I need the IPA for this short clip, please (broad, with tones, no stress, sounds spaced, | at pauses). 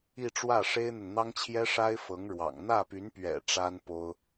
i˥˧ ʈ͡ʂ w ä˥˩ ʂ e˥ ɪ̯ n̪ ə˨ n n̪ ɑ˥ ŋ t͡ɕʰ j ɛ˥ ʂ a˥ ɪ̯ f ɤ˧˥ ŋ ɻ w ɑ̰˨˩ ŋ n̪ ä˥˩ p y˧˥ n p ɥ ɛ̰˨˩ ʈ͡ʂ a˥ n p o˥ ʊ̯